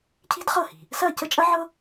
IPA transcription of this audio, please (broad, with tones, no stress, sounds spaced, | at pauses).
cʰ i̤˥ d χ ɤ˥˩ h i̤˩ | s ɐ˥˩ c ə˥ t͡ʃʼ ɐ˥ ʕ ɤ˥